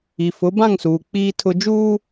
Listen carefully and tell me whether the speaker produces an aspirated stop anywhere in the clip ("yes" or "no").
yes